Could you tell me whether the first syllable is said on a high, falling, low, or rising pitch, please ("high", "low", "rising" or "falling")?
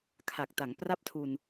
low